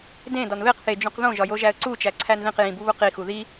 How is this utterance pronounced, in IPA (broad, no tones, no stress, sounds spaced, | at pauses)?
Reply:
d ẽ d ɒ n β e q θ e d͡ʒ ũ q ð õ ʒ ɒ j o ʒ æ ə̯ ǀ u t͡ʃ æ ǀʰ æ n ð ĩ q j ĩ b u β u q i x u ð i